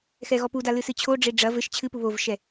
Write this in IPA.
xɛɣɔpuda lɨsɨt͡ɕʰoɖ͡ʐe ɖ͡ʐɐ vɘʃ t͡ɕʰɨpu βovʃɛ

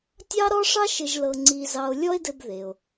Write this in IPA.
tʲɑ˥ɾɔ˥ʂɑ˥ʃɘ˧ʒ lɤ˧ŋ͡ǀi˧zɑ˧o̯ lʲɔ˥e̯dɘ˧b ðe˩o̯

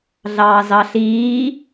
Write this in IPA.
ɮɑːzɑɬiː

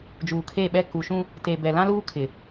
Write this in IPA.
d͡ʒuː˨kʰe˦˨ɓɛ˦ ku˨ʃũ˦ | te˨bɛ˨ lã˦luː˦kʰɪ˨

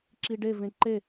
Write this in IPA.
ǁiɖevẽ ǃe

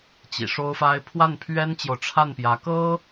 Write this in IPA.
t͡ɕḭ˨˩ʂo˥ʊ̯fa˥ɪ̯ pʰwa˥˩npʰɥɛ˥nt͡ɕjo˨ʊ̯ ʈ͡ʂʰa˥˩npjä˧˥ kɤ˥

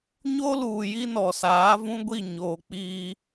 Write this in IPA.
ɲo˦luː˨ ji˦nɔ˨saː˨˦vũ˦ ɡʷi˦˨ɲoː˨k͡piː˦

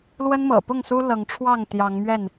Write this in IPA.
lwə˦n mɤ̰˨˩pʊ˥˨ŋsu˦ lɤ˨˦ŋʈ͡ʂʰwɑ˥˨ŋ t̪jɑ˨˦ŋ mɥɛ˥˨n

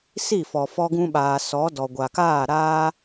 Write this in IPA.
si˦˨fɔ˨ fɔ˧ɡũ˧ɓaː˨ sɔ˨˦ dɔ˨ɡʷa˨kaː˦˨ ɾaː˦

